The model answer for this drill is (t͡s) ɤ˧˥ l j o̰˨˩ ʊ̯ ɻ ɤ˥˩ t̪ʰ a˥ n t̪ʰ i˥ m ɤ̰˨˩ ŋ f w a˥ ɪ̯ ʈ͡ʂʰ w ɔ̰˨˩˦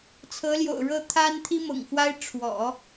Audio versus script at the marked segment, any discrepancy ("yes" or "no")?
yes